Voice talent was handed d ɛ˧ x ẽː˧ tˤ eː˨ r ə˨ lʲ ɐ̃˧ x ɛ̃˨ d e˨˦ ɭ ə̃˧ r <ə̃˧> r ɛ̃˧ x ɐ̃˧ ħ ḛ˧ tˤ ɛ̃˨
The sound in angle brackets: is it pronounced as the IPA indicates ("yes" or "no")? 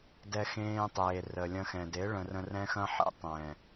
yes